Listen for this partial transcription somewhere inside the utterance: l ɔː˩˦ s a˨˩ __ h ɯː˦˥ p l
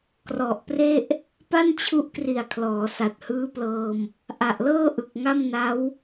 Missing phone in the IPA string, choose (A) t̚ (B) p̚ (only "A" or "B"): A